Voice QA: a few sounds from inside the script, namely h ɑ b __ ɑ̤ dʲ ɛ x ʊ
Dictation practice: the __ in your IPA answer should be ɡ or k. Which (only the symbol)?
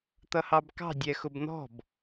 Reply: k